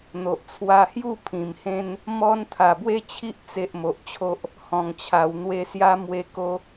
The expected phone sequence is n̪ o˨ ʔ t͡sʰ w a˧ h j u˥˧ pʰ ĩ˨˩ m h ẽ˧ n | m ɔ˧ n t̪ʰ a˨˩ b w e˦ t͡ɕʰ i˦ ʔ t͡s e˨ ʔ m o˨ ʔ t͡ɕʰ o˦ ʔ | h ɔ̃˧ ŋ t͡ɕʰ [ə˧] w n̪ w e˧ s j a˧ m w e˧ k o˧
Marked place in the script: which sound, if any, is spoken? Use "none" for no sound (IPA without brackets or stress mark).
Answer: a˧